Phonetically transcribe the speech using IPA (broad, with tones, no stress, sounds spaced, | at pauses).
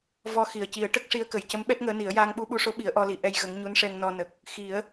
v ɔ˧ x i˨˩ ə̯ c i˨˩˦ ə̯ ʈ ə˦˥ k̚ ʂ i˧˥ ə̯ k ə˨˩ j c ə˧˥ m ɓ ɛ˦˥ t̚ ŋ əː˧˥ n i˨˩˦ ə̯ j aː˧ ŋ ɓ u˧ ɓ u˧ ʂ o˧˥ ɓ i˨˩˦ ə̯ ʔ ɔ˧ l i˨˩˦ ʔ ɛ˧ j ɣ ə˧˥ ŋ ɲ u˧˥ n ʂ ɛ˧ ŋ n ɔ˧ n ə˨˩ k̚ | x i˨˩˦ ə̯